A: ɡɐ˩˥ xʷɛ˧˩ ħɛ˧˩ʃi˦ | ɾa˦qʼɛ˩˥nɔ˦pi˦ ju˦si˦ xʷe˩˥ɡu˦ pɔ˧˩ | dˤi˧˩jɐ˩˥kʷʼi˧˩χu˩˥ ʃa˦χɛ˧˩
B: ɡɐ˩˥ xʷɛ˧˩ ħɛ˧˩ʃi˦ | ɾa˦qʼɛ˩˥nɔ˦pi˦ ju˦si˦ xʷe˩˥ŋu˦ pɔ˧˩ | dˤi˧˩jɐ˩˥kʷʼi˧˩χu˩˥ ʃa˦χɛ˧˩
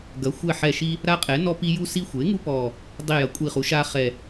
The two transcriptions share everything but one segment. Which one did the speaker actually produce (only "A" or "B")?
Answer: B